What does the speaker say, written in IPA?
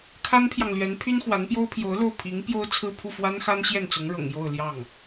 kʰa˥npʰjɑ˨ŋlɥɛ˧˥n pʰy˥nxwa˧˥npjo˥ʊ̯ pʰjo˧˥ʊ̯lo˥˩ʊ̯ pʰi˧˥ŋ pjo˥ʊ̯t͡sʰɹ̩˥˧ pʰu˥˩fwa˥nxa˥n ɕjɛ˥˩nt͡sʊ˧˥ŋɻɤ̰˨˩ŋ jo˥˧ʊ̯ ljɑ˥˩ŋ

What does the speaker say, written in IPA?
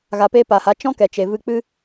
ɣa˧pe˦ paː˨ha˨˦ t͡ʃɔ̃˦kɛ˨t͡ʃe˨ vɨ˧k͡pɨ˦

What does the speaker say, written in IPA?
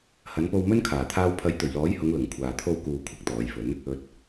hɐ˨˧n po˧wmɵ˥nkʰaː˨˩t̪ʰaː˧w pʰɐ˨˥jt̪ɵ˨˩ɥlɔː˨˥jhʊ˨˧ŋ lʊ˨˩ŋkʷʰaː˨ t̪ʰo˧wkuː˨ kʷʰɪ˨˥k̚t̪ɔː˨˧jfɵ˨˥n | ɵ˨t̚

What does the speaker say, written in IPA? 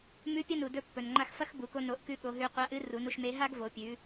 mʉ˧˥pʲɐ˥nu˩dɵ˧ pːɵ˩nŋ͡ǃa˧xfɐ˥x bu˩ko˧no˩˧ʔkʉ˧ ɠo˩˧ɦʉ˧ qʷa˧˥ ʔɨ˧˥ ru˩˧nu˧ʃme˧˥ ɦa˥ɡvo˩˧pʲʉ˩˧

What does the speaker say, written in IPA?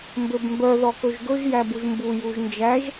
mbøbmbœ ðɔkɵʒɡɵʒ jæbuʒmbu juʒnd͡ʒæʒ

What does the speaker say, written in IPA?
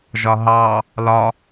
ʒɒɦɑ | lɒ

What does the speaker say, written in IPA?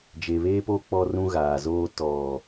d͡ʒe˨βeː˦po˦ k͡pɔ˦rũ˦ɣaː˨zoː˦ tɔ˨

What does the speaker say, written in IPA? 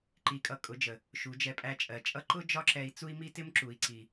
ǃi˧kʼʌ˧ kʼʊ˨˦d͡ʒə˨ | ʃu˨˦ d͡ʒɛ˧pʼæ˧t͡ʃʼɜ˨t͡ʃʼʌ˦ ǃʊ˦ d͡ʒɒ˦ǁɛ˧i̯ t͡su˦i̯mi˦tɪ˦m ǁu˨i̯ǀi˨

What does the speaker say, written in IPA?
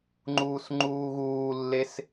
ŋ͡ǃuːsŋ͡ǃuːɣuːlːes

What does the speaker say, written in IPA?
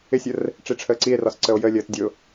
ɪsʲər | ʈ͡ʂiʈ͡ʂʰəːǀie̯rɒs ǀəo̯jəlʲəːt dʲʊ

